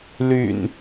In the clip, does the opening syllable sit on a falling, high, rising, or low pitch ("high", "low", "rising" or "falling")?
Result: low